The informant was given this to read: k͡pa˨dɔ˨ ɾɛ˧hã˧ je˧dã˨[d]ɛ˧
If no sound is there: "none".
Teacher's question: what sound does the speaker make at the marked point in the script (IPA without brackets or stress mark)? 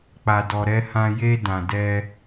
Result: d